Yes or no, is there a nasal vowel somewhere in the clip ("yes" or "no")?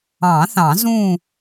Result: yes